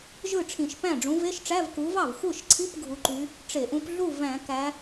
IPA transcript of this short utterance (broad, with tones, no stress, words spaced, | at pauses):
ʒɯ˥˩ʈ͡ʂʰĩ˧˩˧ʃpæ̃˥˩ ɖ͡ʐũ˨˦ve˧˥˧ʃʈ͡ʂæ˧˥˧v ku˨˦vɑ˥˩vxʷɯ˥˩ʃǀʰi˧˥˧p ɡʱu˨˦ǃy˨˦ | ʈ͡ʂe˧˩˧ʔũ˨˦p ɮu˥˩væ̃˧˩˧ kæ˨˦